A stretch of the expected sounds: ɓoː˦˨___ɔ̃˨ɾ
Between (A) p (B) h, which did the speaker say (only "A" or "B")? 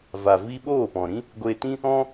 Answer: A